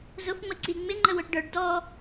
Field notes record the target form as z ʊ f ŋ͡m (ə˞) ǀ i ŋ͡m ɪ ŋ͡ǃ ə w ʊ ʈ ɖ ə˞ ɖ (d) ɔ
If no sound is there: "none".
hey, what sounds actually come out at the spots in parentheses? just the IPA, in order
ə, d

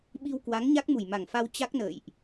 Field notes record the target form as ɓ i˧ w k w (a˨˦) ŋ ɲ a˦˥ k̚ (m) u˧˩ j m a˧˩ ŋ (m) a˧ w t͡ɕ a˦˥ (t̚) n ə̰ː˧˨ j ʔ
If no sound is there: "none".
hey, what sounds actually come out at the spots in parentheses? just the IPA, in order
a˨˦, m, f, k̚

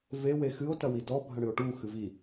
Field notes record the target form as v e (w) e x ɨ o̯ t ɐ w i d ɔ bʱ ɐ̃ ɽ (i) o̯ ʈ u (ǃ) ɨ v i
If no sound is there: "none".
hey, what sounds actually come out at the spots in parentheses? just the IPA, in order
w, ɨ, x

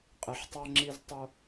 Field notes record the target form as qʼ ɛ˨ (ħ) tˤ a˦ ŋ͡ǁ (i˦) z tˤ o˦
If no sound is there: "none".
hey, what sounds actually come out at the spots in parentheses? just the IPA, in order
ħ, i˦

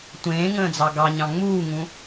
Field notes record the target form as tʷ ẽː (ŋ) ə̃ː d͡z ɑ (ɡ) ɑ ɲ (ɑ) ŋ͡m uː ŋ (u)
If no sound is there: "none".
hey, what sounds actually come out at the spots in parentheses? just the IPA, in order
ŋ, ɡ, ɑ̃, ũ

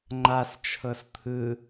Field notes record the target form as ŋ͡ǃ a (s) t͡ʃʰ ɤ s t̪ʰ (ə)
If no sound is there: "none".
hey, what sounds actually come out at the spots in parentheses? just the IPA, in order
s, ɯ

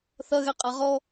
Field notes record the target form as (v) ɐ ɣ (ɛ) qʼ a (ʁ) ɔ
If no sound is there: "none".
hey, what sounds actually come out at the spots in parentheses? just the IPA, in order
θ, ɛ, ʁ

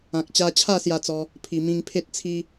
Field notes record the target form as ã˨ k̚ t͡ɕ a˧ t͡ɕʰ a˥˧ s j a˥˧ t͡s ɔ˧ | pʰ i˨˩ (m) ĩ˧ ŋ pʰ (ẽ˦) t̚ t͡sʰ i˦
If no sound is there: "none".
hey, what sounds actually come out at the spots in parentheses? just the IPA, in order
m, e˦

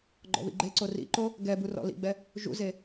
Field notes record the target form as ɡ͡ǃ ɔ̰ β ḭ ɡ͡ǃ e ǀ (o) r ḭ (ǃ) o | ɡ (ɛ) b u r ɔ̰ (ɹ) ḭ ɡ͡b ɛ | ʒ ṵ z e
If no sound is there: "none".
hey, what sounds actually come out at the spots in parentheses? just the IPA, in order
o, ǃ, ɛ, l

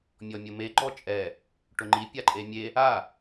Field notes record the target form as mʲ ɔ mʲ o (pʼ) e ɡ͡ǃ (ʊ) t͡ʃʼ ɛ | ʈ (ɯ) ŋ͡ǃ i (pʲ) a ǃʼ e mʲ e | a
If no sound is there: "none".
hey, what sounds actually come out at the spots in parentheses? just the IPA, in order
m, ɔ, ʊ, pʲ

